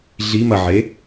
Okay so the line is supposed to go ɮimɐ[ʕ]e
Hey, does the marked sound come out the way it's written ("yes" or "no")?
yes